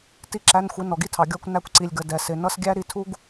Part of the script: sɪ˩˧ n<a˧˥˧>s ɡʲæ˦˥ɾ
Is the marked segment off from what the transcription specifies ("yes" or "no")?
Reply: yes